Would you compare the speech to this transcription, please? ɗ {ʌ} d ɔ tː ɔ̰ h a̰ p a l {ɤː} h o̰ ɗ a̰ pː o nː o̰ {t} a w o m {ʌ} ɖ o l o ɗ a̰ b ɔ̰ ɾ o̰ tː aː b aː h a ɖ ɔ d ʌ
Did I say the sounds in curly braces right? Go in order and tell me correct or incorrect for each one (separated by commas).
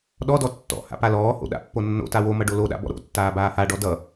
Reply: incorrect, incorrect, correct, correct